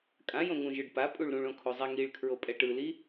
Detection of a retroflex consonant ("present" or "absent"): present